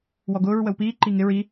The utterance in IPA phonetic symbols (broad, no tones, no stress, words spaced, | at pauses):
wɔɡʊːɹ wəwpiː ǃiŋɪɹ i